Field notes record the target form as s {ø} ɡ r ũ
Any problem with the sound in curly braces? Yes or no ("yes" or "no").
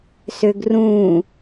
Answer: no